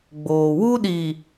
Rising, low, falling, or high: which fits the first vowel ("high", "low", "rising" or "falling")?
low